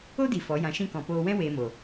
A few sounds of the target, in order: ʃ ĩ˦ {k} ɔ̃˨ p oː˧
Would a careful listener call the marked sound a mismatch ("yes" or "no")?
no